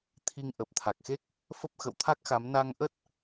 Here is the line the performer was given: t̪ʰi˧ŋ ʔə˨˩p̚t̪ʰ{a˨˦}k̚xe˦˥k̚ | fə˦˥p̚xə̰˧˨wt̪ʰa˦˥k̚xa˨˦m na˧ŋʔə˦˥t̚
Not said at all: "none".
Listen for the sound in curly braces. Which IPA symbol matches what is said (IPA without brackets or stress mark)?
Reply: a˨˩